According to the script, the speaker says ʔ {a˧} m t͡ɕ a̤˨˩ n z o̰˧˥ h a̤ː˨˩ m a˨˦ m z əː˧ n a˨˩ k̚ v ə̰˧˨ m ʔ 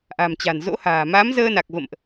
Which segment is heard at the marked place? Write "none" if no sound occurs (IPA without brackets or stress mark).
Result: a̤˨˩